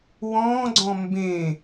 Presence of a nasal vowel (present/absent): present